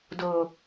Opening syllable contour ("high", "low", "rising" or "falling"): low